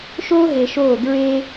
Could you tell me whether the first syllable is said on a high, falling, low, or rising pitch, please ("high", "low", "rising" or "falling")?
high